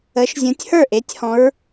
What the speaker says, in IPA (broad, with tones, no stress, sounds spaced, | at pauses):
ə˨˦ ʃ zʲ ũ˨˦ tʲ h ə˞˥˨ ʔ e˨˦ tʲ h ɔ̃˨˦ ɹ